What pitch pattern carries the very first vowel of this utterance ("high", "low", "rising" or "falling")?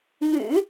low